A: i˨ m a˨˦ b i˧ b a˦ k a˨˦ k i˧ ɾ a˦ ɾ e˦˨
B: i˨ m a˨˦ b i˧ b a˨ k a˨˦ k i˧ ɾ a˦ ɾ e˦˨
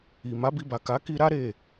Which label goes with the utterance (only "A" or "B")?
B